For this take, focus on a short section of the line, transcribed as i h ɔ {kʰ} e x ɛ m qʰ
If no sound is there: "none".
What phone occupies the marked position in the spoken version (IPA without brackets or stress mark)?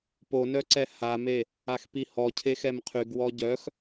cʰ